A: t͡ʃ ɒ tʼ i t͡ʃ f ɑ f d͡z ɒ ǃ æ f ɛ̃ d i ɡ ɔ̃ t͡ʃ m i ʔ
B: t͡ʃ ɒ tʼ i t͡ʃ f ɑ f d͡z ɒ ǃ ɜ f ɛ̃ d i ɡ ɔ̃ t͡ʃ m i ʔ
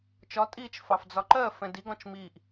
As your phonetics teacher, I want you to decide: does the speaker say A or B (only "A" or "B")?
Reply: B